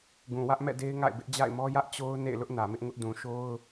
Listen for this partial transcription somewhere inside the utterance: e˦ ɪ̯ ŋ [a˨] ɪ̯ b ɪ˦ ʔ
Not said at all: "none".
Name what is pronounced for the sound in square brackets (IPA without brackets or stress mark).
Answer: a̰˦˨